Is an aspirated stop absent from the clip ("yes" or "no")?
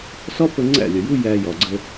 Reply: yes